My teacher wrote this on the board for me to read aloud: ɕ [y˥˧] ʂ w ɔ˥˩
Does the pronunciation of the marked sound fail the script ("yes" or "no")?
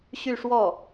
no